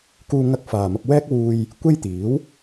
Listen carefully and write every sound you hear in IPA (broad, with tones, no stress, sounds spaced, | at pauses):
k uː˧ ŋ ɐ˧ k̚ f aː˨ m ɐ˧ p̚ w ɛː˥ k̚ w uː˧ j | kʷ e˥ j t̪ iː˨˥ w